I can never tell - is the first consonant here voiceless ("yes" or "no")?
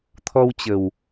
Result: yes